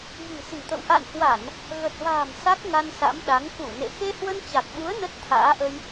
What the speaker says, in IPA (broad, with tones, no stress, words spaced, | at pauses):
vi̤˨˩si̤˨˩t̪ə̰˧˨w ʔa̰˧˨nhwa˧˩˨n | ɣə˨˩t̚va̤ː˨˩m sa˦˥k̚ŋa˧nsa̰˧˥mɗa˨˦ŋ ku˧˩ nḛ˧˨ xe˧hwə˧nt͡ɕa˨˩k̚ɓu˨˦ə̯ nə˦˥t̚t̪ʰa̰ː˧˥ʔə˧j